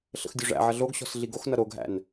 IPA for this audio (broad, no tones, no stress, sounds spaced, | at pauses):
ɬ ə̰ x dʲ o ʐ æ̰ ʕ ʌ ɮ o ɡ ɕ ɔ̤ s ɮ i ɡ o x n ʌ ɾ o ɡ ɦ æ̰ n